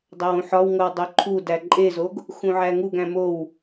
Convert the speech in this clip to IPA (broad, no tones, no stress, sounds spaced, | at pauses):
dˤ æ w ũ ħ ɒ w ŋ o w dˤ o ǃʰ u d æ ǃʼ e z o ɡ | x ũ ʕ æ ŋ u ɡ æ̃ m o w